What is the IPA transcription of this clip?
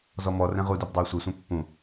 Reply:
z ɔ m ɔ r ɛ̃ ʁ u d i b dˤ a j sʷ e sʷ ɛ̃ pː ũ

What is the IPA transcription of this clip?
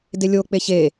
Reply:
d e lʲ o k͡p e ç e

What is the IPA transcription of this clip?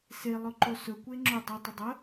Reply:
s e lˠ ɵ ǃ o s ɵ kʷ e ŋ͡ǁ ʊ dˤ o tˤ ʊ dˤ ə

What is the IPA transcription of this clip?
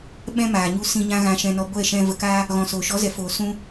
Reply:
ɓ ɛ̃˦ m aː˨ ɲ u˧ s ĩ˧ ɲ ã˦ ɣ ã˧ ʃ ɛ̃˧ n ɔ˧ ɡʷ ɛ˦˨ ʃ ɛ̃˧ v ə˨ k a˧ | ɣ ɔ̃˨ s oː˨ ʃ ɔ˨˦ z ɛ˨ f oː˨ s ũ˧

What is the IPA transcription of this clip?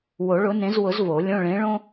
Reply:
w o˨˩˦ ɭ ʊ˨˥ n ẽ˨˥ z w ʊ˨˩˦ z v o˨˩˦ lʲ õ˧˥˧ ɭ ẽ˨˥ ɭ õ˥

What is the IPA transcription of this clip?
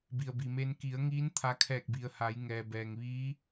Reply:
b i˩ ə̯ b i˩ m e˧ n k i˩˧ ə̯ ŋ iː˧˥ n t̪ʰ a˧ kʰ ɛː˧˩ k̚ b i˩ ə̯ h a˩˧ j ŋ ɛː˩ b ɛː˩ ŋ ʋ iː˧˥

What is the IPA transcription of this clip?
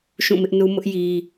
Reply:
ʃ ũ˦˨ m ɪ˦ ʔ n u˦ m ʊ˦ ʔ j i˦

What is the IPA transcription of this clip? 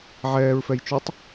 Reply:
ʕ ɛː ɹ f ɛ j t͡ʃ o tˤ

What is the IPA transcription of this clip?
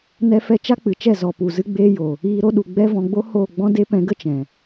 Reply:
n ɛ˧ f ɛ˧ t͡ʃ a˦ k͡p ɨ˨ t͡ʃ ɛ˦˨ z ɔ˨ p u˨ z ɨ˧ ɡ͡b eː˧ j o˨ | iː˧ ɾ o˦ ɗ u˨ ɡ͡b ɛ˦ v ɔ̃˧ ɡ͡b o˦ h oː˦˨ ɡ͡b ɔ̃˦ d e˦ p ɛ̃˧ ɡ ə˦ t͡ʃ ɛ̃˨

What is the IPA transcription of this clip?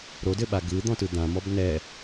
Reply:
ɾ o d ɘ ɓ a ɡ ɯ d̪ ɔ̃ t ɯ d̪ ã m ɔ b n ɛ

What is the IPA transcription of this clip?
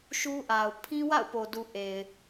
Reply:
ʃ u˦ ʔ a˨ ʊ̯ pʰ ĩ˦ w a̰˦˨ ʊ̯ p o˨ d u˨ ʔ e˨ ɪ̯

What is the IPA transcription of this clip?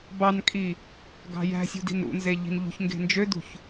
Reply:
b ɑ n kʼ i | ɡ ɑ̤ j æ̤ sʲ ṳ d i̤ n ɾ ṵ n z e ʎ i̤ n ʎ ṳ ç ŋ ɡ e̤ n d͡ʒ ø d ṳ ç

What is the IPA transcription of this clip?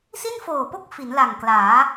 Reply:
s i˥˩ n f oː˨˩ p o˥˩ k̚ f i˩˦ n l a˨˩ ŋ k l aː˩˦

